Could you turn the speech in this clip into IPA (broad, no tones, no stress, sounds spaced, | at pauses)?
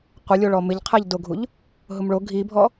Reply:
qʷ ɪ lʲ o ɭ ɔ m ɪ ʎ qʰ ɛ ʎ d o ɡʱ u ʎ | ɦ ʊ m ɭ o ɡʱ i bʱ ɔ